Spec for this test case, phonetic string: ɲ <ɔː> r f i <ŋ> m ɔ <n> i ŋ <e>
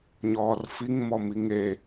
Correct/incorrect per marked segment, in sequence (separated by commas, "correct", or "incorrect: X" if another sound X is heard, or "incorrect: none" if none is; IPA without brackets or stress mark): correct, correct, incorrect: m, correct